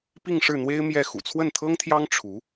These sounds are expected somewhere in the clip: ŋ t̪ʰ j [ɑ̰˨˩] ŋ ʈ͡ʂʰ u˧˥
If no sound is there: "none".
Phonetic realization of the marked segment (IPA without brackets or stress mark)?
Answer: ɑ˥